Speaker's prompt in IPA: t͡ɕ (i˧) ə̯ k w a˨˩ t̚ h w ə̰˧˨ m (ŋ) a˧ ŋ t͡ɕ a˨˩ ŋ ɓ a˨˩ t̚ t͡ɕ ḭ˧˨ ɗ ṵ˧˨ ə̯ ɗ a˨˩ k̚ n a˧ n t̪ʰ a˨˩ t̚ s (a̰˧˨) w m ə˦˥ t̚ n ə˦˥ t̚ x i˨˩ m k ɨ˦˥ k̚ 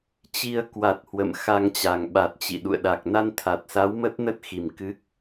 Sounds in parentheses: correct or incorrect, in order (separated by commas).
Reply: correct, incorrect, incorrect